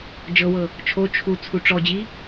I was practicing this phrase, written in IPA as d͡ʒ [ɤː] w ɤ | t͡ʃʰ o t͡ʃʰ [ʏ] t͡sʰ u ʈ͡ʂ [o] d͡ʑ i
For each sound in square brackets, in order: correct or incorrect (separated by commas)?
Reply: incorrect, incorrect, incorrect